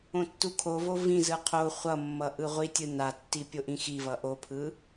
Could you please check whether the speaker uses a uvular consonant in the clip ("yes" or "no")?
yes